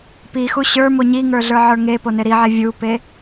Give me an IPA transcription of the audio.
p i x u ɕ ə˞ m o ɲ i ŋ ə˞ ɮ ə˞ ʕ ə˞ ŋ e p o n e ɾ i ʕ e vʲ u p e

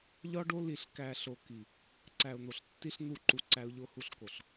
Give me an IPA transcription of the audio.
ʎ ɒ˦ ɖ o˦ l i˨ ɬ k æ˨ ɬ o˨ k i˨ | ǀ æ˨ ʊ̯ n̪ o˨ ɬ tː i˦ ɬ n̪ u˦˨ ǃ u˨ ǀ æ˦ ʊ̯ ʎ o˦ h u˦ ɬ k o˨ ɬ

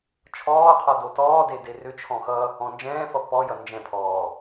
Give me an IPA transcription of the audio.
t͡ʃʰ ɔː qʰ ɔ d o t ɔː d e d e r ʏ t͡ʃʰ ɔ̃ x ʌ | ɔ̃ n d͡ʒ ɛ̃ː f ʌ p ɔ j ʌ n d͡ʒ ɛ̃ pʰ ɔː

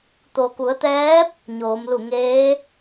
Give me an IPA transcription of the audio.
t̪ o˩ k u˩˧ ə̯ t̪ ɛː˧˥ p̚ | ɲ oː˩˧ m l u˧˩ ŋ eː˧˥

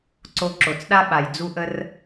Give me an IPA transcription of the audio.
ǀ o˧ ǁ o˨ t͡s ɗ a˦ ɓ a˨ j d͡z u˧ ʔ ə˧ r

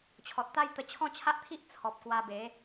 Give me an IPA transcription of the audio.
t͡ɕʰ ɔ˨ t̚ t̪ a˦ j t̪ ə˧ t͡ɕʰ ɔ̃˦ t͡ɕʰ a˦ ʔ t̪ʰ i˦ ʔ t͡sʰ ɔ˨ p̚ k w a˧ b e˨˦

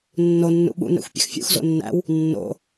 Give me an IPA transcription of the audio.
nː o nː ṵ ɓ ṵ n ɛ̰ xʷ pʲ ɛ̰ x fʲ ṵ x z o̰ nː æ̰ w | nː o̰

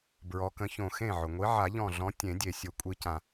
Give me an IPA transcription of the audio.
b ɹ ɔ˨˦ k ə̃˨˦ ç õ˧˩ x ẽ˥˩ ʕ ʊ˩ ŋʷ i˨˦ ʕ a˨˩˦ ʎ ɔ̃˧˩ ɮ ɔ̃˨˦ tʲ ẽ˨˩˦ dʲ e˩ sʲ ʊ˨˩˦ kʷʼ i˨˦ c ã˩

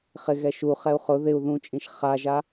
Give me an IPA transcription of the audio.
χ ɪ ɣ ɛ ʃ u χ ɛ u̯ χ ʊ ð ɪ u̯ ð ũ t͡ʃʼ ĩ ʃ χ a ʒ a

